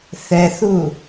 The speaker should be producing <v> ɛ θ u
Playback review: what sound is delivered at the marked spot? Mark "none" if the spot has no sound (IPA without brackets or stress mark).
θ